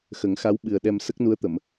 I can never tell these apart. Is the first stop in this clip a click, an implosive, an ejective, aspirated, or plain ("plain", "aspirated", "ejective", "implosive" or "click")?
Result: implosive